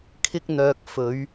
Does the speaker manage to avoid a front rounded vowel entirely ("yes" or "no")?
no